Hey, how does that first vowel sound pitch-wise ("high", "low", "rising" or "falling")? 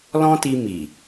high